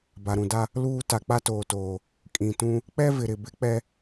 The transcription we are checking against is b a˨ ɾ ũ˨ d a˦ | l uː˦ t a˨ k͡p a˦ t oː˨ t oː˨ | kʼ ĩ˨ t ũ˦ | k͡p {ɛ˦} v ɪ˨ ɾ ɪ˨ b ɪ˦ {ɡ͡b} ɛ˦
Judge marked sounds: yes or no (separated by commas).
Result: yes, no